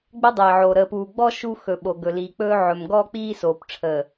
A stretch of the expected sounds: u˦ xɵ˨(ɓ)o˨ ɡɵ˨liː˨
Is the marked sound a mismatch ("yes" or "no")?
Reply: no